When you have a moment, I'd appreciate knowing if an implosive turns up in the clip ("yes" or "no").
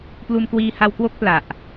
no